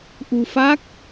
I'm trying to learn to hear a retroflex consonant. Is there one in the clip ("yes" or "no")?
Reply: no